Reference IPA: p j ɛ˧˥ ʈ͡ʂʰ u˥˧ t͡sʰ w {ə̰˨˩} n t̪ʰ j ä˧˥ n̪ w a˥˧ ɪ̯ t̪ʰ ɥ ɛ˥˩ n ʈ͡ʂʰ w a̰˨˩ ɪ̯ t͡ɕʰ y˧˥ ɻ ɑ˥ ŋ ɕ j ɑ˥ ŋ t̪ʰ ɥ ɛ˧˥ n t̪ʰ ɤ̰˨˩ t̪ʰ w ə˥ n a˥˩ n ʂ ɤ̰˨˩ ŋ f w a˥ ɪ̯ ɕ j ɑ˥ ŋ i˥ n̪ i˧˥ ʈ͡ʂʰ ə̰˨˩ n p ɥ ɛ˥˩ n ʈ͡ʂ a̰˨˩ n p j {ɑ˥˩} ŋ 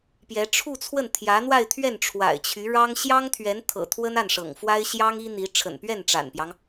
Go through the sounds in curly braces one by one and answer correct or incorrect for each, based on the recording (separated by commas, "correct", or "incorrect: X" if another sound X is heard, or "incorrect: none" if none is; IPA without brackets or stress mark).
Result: incorrect: ə˥˩, incorrect: ɑ˦